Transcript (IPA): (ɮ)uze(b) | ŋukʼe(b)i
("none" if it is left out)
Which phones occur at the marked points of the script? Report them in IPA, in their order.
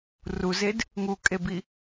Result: r, d, b

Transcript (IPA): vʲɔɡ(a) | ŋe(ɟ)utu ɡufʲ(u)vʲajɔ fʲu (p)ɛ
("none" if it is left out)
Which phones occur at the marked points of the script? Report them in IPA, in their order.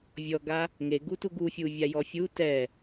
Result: a, ɡ, u, t

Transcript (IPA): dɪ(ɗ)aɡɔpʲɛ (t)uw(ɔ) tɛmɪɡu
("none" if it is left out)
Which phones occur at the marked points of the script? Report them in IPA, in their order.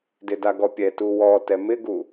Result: d, t, ɔ

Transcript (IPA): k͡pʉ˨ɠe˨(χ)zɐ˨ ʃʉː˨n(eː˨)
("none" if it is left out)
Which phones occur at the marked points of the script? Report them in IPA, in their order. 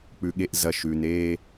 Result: ʔ, eː˦

